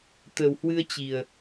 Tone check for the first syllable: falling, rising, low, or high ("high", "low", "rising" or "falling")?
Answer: low